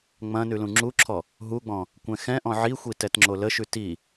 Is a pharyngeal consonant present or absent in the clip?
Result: present